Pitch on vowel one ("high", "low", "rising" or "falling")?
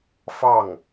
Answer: falling